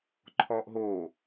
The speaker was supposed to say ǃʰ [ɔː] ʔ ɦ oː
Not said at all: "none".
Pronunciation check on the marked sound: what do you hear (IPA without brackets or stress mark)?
ɔː